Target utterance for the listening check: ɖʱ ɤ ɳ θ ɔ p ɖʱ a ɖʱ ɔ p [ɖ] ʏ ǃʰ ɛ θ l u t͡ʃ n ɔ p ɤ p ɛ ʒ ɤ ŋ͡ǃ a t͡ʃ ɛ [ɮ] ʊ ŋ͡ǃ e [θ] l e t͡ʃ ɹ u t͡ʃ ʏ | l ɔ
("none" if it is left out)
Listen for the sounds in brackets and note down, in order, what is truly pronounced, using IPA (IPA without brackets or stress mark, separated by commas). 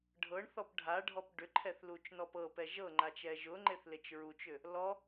ɖ, ʒ, θ